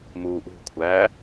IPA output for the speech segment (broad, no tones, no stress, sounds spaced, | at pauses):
m uː ʔ ṳ kʷʰ æː